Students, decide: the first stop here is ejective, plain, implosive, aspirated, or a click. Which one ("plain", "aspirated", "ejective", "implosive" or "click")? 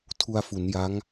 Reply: aspirated